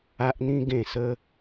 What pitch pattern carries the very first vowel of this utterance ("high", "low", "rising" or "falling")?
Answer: high